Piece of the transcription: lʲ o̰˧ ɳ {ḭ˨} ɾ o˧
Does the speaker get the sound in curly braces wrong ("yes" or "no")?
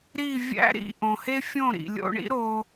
yes